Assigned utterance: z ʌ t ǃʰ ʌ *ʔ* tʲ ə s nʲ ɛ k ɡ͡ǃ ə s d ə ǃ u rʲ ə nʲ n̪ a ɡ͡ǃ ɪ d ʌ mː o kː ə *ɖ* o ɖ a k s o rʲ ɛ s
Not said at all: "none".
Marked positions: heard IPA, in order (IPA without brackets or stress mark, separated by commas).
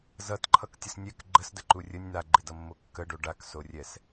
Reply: k, ɖ